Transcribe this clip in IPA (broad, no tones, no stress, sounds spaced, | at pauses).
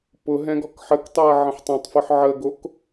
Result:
p ʊ ɦ ɛ̃ ɡ ɔ k ħ ə k tˤ o ɐ̯ ʕ ə̃ ħ tˤ õ tˤ f ʊ ħ ʕ ə ɡ o k